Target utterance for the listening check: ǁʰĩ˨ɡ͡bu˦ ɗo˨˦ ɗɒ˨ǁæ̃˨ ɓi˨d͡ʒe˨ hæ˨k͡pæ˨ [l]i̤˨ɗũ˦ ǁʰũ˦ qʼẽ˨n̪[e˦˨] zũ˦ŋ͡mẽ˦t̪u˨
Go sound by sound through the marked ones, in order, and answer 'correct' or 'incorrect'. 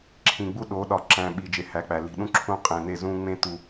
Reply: correct, correct

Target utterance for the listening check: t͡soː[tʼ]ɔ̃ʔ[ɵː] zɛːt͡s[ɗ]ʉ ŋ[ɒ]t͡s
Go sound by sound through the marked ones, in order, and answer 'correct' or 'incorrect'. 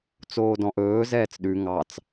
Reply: incorrect: d, correct, correct, incorrect: ɑ

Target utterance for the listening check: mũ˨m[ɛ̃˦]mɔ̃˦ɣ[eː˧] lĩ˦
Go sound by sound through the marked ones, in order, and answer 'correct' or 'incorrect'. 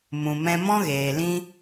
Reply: incorrect: ɛ̃˧, incorrect: eː˨

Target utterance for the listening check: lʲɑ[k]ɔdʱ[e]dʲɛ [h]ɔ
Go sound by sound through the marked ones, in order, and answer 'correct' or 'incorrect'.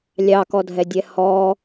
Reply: correct, incorrect: ɛ, correct

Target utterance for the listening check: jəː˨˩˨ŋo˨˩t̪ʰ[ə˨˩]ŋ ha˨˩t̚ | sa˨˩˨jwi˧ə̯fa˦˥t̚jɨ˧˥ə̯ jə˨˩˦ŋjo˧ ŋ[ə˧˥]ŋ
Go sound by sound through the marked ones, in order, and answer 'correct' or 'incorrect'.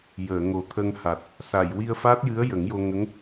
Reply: incorrect: ə˧, correct

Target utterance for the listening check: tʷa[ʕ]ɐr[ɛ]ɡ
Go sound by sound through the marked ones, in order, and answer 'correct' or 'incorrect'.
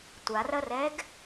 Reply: incorrect: r, correct

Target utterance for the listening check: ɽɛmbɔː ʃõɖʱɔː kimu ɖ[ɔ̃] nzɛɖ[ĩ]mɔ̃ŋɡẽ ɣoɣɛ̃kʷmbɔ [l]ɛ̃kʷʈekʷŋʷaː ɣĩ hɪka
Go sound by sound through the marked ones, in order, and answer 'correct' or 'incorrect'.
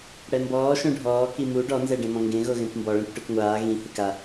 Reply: incorrect: ɔ, incorrect: ẽ, incorrect: ɭ

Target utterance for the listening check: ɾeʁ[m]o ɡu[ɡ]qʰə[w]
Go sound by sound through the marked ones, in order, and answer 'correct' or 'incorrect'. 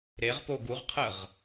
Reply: incorrect: p, incorrect: ʁ, incorrect: ʁ

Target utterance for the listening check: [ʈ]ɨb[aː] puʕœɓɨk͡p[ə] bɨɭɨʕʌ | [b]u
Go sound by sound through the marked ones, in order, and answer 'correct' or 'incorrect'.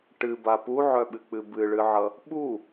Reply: correct, incorrect: a, incorrect: ɨ, incorrect: ɓ

